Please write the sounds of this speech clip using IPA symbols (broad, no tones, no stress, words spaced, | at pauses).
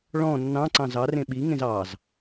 ɭɔ̃ nːɑ̃ǀɑ̃ zɑ rẽɓiŋẽz ɑz